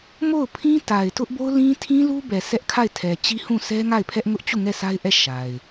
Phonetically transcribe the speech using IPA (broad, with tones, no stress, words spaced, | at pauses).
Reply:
mo˦˨ʊ̯pʰĩ˦ta˨ɪ̯ tʊ˦ʔbo˦ʊ̯lĩ˦tʰĩ˦ lu˦bɛ˨ sɛ˦ʔkʰa˦˨ɪ̯tʰɛ˨ t͡ɕi˦hũ˦˨sɛ˦ŋa˦˨ɪ̯ pʰɛ˦ʔŋʊ˦ʔ t͡ɕu˦˨ŋɛ˦˨ sʰa˦ɪ̯ʔɛ˦˨ ʃa˨ɪ̯